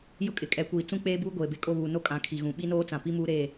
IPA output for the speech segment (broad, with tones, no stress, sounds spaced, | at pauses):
j ʊ˦ kʼ ɪ˨ kʼ ɛ˨ kʷ iː˨ t͡s ũ˦ k͡p eː˦ b uː˦ ɡʷ eː˨ b e˦ kʼ o˦˨ β uː˨ n o˦ kʼ ã˨˦ kʰ i˨ ɣ ũ˨ ɓ i˦ n oː˦ t͡s ã˨ p i˦ m uː˦ ɾ eː˦˨